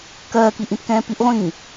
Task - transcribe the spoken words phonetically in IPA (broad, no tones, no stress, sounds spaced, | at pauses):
k ɜː k i ʔ ĩ t k ɛ̃ː p i ʔ ʁʷ ĩː